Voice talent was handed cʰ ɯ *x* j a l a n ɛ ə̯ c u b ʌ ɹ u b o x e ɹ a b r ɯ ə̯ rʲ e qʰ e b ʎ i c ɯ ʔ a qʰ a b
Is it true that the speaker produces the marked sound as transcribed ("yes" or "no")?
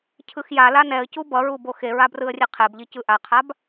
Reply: yes